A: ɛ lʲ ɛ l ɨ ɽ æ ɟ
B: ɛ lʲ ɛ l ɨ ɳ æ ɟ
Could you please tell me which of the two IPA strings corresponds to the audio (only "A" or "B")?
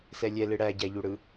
A